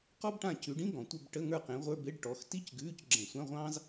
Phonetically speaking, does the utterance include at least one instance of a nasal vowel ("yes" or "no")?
yes